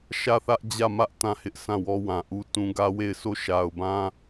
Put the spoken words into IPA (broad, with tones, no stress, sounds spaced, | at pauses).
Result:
ʃ ä˦˨ θ ä˦ ʔ d͡ʑ ä˦˨ m ä˦ ʔ t ã˦˨ h ɪ˦ ʔ s ã˦˨ w ɔ˦ w ã˨ ʔ u˦ t ũ˦ ɡ ä˦ w e˦˨ ɪ̯ sʰ o˦˨ ʃ a˨ ʊ̯ b ã˦